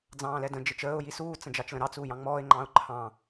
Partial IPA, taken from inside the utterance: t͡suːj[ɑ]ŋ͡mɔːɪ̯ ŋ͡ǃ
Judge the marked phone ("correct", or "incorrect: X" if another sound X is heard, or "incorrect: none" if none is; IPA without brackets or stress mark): incorrect: ɑ̃